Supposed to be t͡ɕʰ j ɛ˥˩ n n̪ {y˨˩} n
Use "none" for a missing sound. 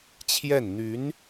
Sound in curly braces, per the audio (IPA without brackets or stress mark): y˧˥